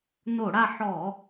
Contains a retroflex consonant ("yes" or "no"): yes